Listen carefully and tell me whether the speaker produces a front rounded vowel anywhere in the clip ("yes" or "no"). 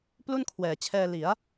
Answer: no